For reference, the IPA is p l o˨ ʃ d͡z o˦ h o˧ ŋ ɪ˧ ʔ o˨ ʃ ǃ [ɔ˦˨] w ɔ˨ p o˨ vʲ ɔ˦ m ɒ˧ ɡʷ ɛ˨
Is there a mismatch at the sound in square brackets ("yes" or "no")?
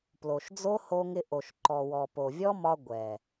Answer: yes